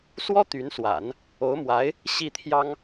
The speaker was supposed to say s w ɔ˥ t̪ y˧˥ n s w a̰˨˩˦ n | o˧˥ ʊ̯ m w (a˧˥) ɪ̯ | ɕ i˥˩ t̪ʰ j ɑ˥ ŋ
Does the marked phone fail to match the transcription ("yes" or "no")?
no